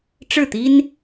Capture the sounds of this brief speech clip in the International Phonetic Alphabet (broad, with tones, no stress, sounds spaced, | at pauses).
ʈ͡ʂ ɻ̩˥˩ t̪ i˥ n